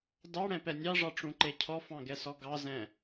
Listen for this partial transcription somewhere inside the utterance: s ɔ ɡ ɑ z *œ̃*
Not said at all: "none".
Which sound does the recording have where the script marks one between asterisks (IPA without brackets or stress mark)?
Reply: ɛ̃